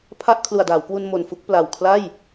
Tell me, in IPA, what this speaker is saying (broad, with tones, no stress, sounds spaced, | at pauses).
pʰ a˥˩ ʔ kʰ l u˨˩ a̯ d aː˩˦ w k w u˧ n m o˨˩ n f u˦˥ k̚ p l a˨˩ w kʰ l a˥˩ j